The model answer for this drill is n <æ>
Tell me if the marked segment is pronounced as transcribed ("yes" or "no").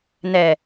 no